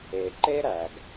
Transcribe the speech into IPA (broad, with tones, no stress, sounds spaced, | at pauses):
e˩ ǃ e˥ ɾ æ˩ ɡ